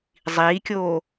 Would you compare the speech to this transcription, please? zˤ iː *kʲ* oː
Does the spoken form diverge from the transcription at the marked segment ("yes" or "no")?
no